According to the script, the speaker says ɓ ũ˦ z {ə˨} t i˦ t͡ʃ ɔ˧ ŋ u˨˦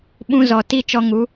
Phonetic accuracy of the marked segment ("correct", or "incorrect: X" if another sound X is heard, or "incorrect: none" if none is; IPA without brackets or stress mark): incorrect: ɔ˨